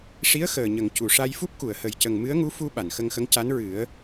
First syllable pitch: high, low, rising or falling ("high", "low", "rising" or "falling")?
rising